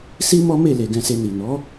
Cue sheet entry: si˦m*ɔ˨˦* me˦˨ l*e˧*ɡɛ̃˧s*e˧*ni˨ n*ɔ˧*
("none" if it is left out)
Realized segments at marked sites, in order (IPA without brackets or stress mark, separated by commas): ɔ˦, e˧, e˧, ɔ˨˦